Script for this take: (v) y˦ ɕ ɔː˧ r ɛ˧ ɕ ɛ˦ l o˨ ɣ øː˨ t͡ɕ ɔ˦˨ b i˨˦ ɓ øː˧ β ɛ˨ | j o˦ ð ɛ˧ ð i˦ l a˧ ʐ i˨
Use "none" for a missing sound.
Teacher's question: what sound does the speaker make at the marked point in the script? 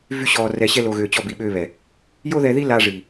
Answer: v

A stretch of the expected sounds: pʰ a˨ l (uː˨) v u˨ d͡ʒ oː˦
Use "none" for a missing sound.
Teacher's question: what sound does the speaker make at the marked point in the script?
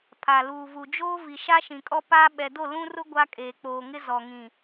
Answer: uː˨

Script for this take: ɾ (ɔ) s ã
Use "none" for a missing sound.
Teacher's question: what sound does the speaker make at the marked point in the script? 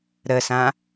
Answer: ə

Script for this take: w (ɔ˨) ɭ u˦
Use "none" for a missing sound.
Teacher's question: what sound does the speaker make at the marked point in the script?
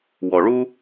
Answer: ɔ˨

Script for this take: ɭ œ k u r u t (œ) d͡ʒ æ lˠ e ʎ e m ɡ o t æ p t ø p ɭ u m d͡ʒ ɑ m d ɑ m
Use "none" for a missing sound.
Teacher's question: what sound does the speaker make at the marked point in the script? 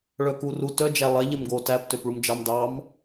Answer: œ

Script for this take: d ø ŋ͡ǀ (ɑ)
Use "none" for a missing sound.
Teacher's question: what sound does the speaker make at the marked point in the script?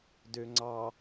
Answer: ɑ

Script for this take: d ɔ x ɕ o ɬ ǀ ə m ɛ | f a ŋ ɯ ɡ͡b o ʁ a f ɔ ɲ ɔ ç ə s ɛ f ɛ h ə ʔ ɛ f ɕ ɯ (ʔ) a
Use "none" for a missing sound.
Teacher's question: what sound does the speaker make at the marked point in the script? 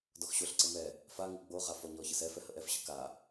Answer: k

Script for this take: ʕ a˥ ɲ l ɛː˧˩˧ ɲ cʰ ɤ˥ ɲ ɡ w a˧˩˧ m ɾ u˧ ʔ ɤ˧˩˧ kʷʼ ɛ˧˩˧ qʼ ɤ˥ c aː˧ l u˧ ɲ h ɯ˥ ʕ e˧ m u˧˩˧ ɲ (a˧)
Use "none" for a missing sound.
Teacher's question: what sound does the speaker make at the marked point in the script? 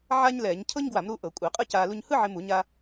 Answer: a˧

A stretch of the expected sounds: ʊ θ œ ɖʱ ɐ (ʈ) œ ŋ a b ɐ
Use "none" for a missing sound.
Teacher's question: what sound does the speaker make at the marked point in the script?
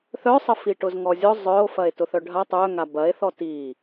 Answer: tˤ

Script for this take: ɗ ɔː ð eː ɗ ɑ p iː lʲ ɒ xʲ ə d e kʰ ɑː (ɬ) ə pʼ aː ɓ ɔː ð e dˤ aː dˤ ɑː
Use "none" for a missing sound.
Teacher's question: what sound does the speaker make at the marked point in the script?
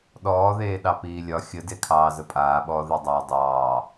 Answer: z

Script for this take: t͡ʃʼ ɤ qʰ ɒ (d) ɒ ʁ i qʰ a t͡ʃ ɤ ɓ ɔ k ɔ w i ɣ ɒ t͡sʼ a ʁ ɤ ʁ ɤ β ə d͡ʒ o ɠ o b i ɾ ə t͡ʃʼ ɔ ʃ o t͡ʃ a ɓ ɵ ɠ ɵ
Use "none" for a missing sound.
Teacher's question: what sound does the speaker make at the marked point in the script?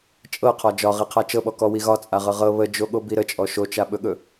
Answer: d͡ʒ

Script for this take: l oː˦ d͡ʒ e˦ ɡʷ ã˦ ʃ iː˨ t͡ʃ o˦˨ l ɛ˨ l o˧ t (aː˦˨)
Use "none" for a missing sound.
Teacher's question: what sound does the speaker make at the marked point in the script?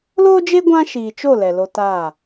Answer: aː˦˨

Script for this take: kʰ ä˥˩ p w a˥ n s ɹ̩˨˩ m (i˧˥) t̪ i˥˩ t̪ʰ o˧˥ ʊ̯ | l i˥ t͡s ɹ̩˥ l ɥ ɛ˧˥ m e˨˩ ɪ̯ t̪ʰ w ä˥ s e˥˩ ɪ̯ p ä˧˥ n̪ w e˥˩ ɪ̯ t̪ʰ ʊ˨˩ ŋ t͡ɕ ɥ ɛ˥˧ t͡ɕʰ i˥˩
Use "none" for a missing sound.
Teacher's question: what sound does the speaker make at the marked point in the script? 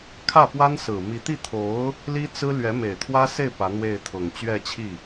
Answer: i˧˥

